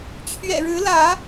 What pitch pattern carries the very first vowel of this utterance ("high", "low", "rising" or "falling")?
low